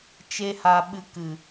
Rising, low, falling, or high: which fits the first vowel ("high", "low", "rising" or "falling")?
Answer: high